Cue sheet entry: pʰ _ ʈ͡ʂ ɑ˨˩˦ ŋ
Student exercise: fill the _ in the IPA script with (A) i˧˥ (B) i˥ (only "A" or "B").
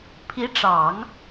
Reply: A